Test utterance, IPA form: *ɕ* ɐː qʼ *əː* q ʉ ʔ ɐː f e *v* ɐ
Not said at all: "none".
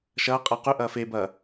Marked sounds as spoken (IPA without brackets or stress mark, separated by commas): ʃ, əː, b